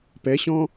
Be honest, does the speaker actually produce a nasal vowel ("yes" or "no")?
yes